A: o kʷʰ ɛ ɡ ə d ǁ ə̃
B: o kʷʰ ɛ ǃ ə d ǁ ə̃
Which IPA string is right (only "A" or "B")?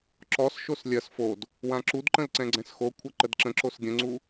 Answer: B